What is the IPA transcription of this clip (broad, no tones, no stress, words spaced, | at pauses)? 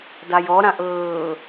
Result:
dajɔɾãʔ ɤː